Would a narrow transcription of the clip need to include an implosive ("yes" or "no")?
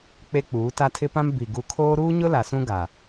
no